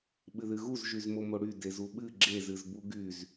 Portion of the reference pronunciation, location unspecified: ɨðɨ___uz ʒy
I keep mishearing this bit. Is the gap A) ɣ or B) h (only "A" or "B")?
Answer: A